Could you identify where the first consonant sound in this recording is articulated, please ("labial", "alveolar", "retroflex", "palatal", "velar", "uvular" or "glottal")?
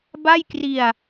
labial